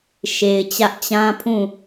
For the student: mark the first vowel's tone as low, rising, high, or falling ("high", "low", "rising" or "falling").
low